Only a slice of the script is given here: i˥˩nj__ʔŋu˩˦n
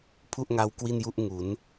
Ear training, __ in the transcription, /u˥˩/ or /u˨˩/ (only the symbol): u˥˩